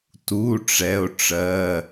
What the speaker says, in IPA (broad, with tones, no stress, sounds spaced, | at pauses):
t u˩˧˩ ʈ͡ʂ ɛ˩˧˩ o̯ ʈ͡ʂ ɜ˩˧˩